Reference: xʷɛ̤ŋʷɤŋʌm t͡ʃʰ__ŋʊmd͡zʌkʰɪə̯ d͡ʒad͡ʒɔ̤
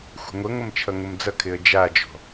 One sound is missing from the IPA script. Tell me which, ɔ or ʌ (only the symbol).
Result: ʌ